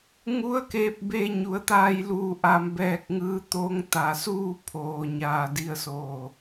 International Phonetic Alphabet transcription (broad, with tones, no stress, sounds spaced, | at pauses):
ŋ u˧˥ ə̯ k eː˧ p̚ b eː˧ ɲ u˩˧ ə̯ t̪ aː˧ j l uː˧˩ ʔ a˧ m b ɛː˧ k̚ ŋ ɯː˧˥ t̪ o˧˥ ŋ t̪ a˩ s uː˥˨ pʰ oː˩ ɲ aː˧˩ d i˧ ə̯ s oː˧˩